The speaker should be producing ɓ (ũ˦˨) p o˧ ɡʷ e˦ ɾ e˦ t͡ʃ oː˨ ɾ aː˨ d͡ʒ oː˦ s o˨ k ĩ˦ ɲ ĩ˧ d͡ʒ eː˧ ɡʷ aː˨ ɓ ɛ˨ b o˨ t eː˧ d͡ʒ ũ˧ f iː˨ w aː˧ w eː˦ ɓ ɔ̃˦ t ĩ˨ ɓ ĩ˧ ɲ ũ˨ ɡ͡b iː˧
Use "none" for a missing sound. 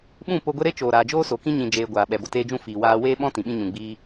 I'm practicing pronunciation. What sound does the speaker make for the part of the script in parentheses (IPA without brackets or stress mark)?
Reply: ũ˦˨